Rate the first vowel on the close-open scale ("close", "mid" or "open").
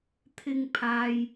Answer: close